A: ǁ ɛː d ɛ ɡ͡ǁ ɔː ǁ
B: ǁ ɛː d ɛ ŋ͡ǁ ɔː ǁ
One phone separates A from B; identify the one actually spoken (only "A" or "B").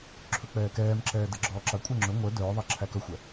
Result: A